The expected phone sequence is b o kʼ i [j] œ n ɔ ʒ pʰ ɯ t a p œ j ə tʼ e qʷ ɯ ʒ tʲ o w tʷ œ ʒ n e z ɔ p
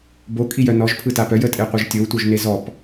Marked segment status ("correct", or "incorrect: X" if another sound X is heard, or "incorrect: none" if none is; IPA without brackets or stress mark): correct